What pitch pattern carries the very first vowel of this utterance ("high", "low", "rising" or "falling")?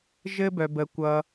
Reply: high